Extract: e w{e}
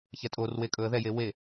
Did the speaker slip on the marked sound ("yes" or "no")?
no